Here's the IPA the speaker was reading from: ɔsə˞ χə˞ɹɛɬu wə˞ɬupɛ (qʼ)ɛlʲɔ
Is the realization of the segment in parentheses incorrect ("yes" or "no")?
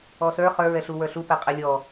no